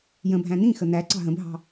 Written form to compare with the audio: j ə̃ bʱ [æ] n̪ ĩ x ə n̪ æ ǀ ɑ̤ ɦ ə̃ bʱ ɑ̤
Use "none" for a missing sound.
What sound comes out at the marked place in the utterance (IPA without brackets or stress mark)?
æ̃